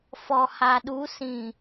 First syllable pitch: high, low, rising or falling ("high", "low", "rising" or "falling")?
low